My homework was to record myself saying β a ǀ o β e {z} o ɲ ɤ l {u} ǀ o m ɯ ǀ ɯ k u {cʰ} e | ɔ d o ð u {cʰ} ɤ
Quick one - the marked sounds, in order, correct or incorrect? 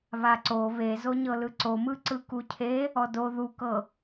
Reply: correct, incorrect: ɯ, correct, incorrect: k

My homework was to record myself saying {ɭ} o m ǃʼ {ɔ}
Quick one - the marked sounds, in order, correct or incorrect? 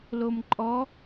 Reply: incorrect: l, correct

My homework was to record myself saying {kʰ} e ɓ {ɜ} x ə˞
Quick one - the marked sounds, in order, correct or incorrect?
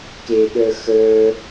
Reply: incorrect: k, incorrect: ə˞

